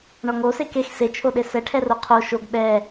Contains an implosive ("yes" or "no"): yes